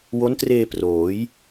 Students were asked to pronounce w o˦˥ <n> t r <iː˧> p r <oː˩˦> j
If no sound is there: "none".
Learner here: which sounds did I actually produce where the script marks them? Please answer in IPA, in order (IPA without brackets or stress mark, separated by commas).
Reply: n, eː˧, oː˩˦